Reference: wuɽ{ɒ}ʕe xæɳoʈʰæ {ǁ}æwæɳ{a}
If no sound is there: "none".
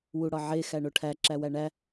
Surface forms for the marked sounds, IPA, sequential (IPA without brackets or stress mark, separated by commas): ɒ, ǁ, æ